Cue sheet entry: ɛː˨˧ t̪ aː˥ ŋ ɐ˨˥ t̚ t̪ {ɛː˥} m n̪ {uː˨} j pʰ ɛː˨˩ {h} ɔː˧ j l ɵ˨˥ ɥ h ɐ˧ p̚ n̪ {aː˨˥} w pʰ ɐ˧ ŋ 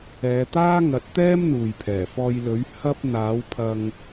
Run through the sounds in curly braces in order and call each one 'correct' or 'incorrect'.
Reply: correct, correct, incorrect, correct

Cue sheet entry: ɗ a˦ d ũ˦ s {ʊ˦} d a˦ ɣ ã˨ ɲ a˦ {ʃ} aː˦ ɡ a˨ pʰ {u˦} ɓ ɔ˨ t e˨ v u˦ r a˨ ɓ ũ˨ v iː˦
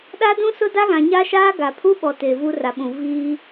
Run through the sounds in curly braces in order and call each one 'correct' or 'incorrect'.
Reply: correct, correct, correct

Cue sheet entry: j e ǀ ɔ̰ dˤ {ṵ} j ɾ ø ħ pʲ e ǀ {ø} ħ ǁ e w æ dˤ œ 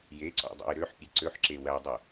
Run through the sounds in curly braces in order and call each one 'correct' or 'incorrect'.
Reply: correct, correct

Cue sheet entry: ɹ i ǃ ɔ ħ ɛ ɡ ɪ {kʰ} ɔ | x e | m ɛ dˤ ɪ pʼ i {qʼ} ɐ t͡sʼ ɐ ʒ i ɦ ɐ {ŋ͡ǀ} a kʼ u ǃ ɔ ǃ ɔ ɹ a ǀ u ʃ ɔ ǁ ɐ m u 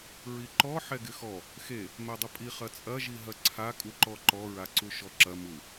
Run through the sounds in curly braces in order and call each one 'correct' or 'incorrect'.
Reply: incorrect, incorrect, incorrect

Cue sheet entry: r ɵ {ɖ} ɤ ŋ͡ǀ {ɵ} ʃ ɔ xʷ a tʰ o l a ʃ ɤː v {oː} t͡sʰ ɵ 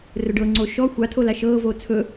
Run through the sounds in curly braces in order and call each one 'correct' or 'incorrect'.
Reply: correct, incorrect, correct

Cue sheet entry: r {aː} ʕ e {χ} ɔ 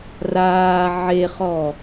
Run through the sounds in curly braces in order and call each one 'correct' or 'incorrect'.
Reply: correct, correct

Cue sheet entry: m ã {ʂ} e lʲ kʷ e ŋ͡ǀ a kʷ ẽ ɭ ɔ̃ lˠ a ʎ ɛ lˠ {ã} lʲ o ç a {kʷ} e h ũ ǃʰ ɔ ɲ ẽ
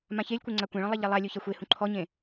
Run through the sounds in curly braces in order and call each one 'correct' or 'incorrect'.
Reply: incorrect, incorrect, incorrect

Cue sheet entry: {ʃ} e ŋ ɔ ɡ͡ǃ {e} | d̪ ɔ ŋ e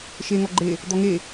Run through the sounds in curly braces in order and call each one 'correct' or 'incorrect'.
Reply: correct, correct

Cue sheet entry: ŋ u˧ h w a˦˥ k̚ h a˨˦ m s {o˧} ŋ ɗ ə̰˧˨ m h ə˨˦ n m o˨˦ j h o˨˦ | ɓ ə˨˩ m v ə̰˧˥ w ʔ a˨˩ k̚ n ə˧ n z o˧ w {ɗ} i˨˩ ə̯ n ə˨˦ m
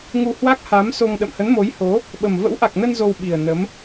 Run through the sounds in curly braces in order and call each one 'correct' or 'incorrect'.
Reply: correct, incorrect

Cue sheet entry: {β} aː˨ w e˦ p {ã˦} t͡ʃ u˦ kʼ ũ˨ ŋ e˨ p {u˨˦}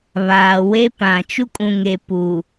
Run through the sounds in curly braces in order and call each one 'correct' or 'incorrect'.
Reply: correct, incorrect, incorrect

